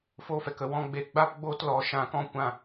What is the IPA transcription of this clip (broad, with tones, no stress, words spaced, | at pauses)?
fo˧fɛ˨k ə˨wɔ̃˧ ɡ͡be˧ɡ͡ba˦pɡ͡boː˦tlɔ˨˦ ʃã˦˨kɔ̃˦ kʷã˦˨